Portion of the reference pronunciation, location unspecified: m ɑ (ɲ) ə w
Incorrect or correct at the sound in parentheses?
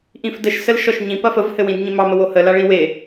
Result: incorrect: m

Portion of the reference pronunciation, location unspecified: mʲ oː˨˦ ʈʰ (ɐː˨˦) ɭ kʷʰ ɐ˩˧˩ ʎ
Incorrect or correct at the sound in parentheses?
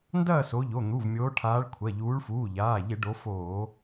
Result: incorrect: aː˨˦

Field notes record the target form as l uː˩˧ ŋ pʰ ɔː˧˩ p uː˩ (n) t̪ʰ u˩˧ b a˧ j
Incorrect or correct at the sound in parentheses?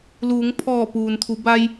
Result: correct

